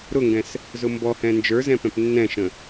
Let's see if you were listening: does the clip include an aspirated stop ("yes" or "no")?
no